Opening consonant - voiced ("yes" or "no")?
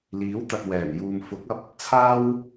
yes